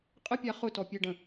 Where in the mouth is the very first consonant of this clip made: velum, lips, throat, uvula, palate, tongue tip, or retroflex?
uvula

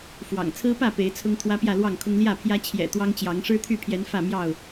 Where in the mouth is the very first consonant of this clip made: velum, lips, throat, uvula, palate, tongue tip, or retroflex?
lips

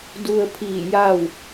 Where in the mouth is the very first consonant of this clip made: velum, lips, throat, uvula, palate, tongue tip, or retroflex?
tongue tip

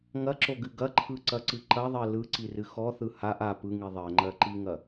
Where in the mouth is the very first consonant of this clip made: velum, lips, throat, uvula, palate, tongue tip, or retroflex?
velum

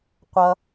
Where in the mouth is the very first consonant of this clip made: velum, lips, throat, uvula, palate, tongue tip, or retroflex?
uvula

